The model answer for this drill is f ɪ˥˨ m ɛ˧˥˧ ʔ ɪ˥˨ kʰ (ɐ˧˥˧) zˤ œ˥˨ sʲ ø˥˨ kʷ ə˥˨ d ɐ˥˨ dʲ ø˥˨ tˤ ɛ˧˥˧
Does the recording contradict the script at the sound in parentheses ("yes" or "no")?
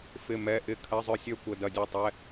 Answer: no